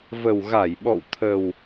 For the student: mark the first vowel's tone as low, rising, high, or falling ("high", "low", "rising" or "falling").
low